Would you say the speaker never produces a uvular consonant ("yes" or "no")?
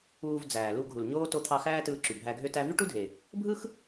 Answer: yes